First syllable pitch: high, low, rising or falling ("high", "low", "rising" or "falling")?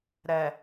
low